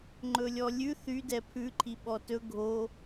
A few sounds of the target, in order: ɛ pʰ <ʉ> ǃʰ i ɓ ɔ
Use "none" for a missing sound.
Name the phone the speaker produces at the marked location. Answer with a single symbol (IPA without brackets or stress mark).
ʉ